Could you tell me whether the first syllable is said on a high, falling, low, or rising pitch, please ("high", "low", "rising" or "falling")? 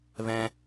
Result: low